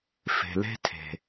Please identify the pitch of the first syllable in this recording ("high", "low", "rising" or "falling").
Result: low